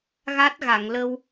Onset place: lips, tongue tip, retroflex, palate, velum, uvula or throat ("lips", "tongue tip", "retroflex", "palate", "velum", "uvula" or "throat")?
velum